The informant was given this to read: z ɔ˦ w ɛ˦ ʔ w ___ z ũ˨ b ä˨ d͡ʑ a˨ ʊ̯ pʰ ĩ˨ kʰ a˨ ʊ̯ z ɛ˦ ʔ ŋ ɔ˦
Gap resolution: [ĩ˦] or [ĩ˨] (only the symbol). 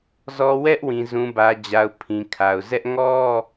ĩ˨